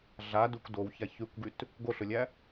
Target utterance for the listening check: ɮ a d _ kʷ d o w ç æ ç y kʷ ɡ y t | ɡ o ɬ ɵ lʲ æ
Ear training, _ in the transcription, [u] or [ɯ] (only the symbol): u